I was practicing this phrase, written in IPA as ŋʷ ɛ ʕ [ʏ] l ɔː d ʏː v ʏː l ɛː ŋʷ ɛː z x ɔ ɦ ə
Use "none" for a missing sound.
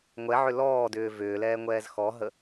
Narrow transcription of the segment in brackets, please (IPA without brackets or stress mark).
ʏ